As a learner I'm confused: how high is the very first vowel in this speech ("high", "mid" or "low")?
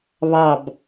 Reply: low